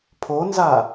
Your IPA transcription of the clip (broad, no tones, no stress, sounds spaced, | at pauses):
pʰ o n z a